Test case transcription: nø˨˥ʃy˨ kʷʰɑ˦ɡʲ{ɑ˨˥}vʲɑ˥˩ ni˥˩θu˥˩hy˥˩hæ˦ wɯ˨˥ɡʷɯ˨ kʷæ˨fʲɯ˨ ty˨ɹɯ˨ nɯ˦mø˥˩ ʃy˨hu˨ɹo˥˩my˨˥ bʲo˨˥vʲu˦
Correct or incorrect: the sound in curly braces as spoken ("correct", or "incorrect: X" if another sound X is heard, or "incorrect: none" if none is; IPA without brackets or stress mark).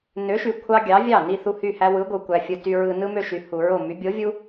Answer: correct